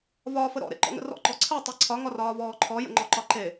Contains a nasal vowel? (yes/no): no